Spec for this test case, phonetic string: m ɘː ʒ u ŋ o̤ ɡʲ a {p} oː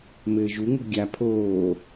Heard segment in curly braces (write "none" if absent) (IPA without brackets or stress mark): pʰ